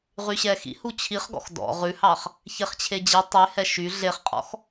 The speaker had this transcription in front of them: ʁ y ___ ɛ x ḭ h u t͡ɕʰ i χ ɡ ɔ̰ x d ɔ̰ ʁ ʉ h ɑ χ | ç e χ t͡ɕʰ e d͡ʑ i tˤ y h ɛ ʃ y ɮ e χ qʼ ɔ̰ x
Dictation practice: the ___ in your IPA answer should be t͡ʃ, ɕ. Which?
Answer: ɕ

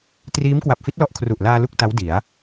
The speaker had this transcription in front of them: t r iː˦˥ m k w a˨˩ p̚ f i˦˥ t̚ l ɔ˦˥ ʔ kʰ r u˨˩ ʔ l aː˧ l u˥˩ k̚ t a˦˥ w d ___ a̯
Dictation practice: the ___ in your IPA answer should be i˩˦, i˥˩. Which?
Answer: i˩˦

